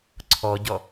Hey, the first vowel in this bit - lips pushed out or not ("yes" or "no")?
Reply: yes